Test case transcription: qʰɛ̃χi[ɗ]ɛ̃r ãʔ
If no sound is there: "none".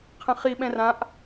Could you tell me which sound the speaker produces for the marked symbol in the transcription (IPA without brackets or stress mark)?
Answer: ɓ